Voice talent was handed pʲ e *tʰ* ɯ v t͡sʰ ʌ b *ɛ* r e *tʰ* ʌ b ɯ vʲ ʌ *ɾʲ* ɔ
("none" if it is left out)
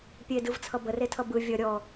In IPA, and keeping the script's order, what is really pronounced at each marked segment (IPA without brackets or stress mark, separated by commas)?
d, ə, tʰ, ɾʲ